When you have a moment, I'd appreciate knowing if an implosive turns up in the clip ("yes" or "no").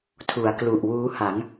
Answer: no